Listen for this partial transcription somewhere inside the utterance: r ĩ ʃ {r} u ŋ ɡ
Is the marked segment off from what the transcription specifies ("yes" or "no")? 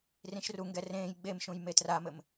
no